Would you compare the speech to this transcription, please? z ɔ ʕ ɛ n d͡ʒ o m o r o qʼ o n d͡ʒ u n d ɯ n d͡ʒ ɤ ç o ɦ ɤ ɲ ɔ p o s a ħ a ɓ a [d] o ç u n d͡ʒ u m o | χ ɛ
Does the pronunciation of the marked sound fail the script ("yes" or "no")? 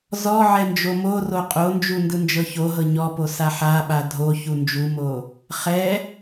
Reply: yes